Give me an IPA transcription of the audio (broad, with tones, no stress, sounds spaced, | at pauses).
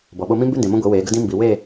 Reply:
b ɔ˨ ɓ o˦ m ĩ˦ m b ʉ˦ n d ẽ˨ m õ˦ ɡʷ i˨˦ w eː˨˦ ɡ ə˦ d ĩ˦ m b i˨ w e˦˨